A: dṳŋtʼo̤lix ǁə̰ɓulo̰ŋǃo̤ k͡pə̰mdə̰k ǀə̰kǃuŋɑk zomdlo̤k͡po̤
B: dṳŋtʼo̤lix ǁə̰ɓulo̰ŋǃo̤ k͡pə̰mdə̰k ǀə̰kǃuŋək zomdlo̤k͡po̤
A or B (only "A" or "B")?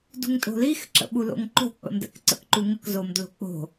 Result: B